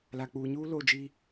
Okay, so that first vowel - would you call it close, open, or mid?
open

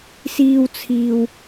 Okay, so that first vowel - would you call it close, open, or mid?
close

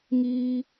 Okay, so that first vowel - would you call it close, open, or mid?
close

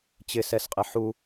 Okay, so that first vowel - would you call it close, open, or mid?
close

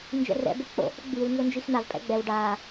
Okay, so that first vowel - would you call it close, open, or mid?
mid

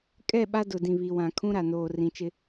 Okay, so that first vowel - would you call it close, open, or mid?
mid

